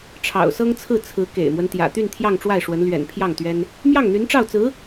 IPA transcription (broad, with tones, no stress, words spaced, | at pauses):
ʈ͡ʂʰɑ̰˨˩ʊ̯sɤ˥ŋt͡sʰɹ̩˥˩ t͡sʰɹ̩˧˥ kḛ˨˩ɪ̯mwə˦n t̪jä̰˨˩t̪y˥˧n t̪ʰjɑ˥˧ŋʈ͡ʂwa˥˩ɪ̯ʂwə˧˥n lɥɛ̰˨˩n pʰjɑ˥˩ŋt̪ɥɛ˥n | mjɑ˥˩ŋn̪y˧˥nʈ͡ʂɑ˥˩ʊ̯t͡sɹ̩˧˥